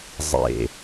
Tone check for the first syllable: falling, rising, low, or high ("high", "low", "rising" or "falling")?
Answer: low